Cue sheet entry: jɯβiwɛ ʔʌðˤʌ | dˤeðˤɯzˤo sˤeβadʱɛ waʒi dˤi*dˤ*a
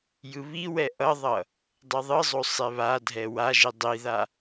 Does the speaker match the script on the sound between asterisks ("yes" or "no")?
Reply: no